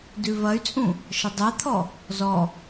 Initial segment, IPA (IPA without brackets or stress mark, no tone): d